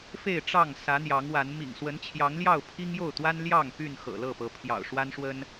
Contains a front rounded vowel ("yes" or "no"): yes